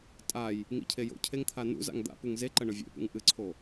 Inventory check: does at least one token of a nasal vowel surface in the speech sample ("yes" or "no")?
no